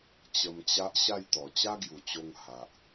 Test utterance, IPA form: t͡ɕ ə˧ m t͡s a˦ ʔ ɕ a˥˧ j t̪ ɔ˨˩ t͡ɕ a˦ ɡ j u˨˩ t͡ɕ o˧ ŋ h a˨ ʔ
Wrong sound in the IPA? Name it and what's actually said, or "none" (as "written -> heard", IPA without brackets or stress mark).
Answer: t͡s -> t͡ɕ